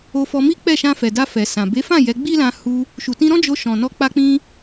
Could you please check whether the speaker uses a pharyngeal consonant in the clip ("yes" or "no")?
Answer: no